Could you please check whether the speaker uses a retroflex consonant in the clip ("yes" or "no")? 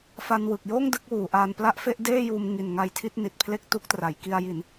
no